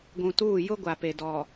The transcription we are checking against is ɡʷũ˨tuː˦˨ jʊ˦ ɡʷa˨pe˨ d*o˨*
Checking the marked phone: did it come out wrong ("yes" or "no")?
yes